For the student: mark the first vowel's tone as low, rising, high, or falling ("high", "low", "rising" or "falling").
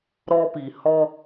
high